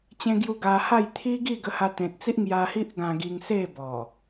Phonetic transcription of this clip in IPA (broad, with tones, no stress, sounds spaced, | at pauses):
t͡ɕ ẽ˧ ɡ j u˧ ɡ a˧ h a˥˧ j t̪ʰ i˦ ɡ i˥˧ ɡ ə˧ h a˧ t̪ ẽ˨ t̚ t͡s i˦ ʔ ŋ j a˧ h i˦ ʔ ɡ ã˧ ɡ i˧ ŋ s e˥˧ b ɔ˨˩